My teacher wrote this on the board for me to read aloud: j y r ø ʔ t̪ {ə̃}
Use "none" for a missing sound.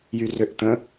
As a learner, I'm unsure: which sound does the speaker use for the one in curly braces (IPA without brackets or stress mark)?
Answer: ə̃